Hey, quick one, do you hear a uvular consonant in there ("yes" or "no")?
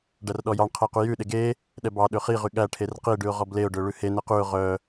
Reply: yes